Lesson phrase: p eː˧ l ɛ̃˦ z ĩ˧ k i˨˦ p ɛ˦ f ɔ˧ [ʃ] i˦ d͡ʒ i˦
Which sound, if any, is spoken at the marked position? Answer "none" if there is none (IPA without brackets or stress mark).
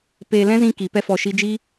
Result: ʃ